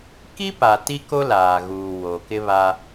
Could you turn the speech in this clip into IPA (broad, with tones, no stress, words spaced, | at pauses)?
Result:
ki˦pa˨ ti˦ko˦laː˨ɣuː˨ wo˨kɪ˦βa˦